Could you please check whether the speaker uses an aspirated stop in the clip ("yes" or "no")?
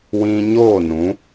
no